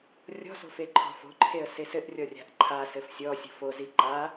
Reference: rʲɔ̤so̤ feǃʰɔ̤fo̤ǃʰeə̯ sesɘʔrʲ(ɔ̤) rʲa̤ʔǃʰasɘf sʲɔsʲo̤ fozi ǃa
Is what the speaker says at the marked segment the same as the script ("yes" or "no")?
no